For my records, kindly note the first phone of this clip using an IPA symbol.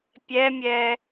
pʲ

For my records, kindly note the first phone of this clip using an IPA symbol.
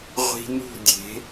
ʁʷ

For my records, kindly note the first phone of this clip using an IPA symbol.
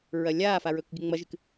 ɹ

